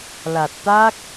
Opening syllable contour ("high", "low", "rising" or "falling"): low